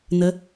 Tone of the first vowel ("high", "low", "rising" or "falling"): rising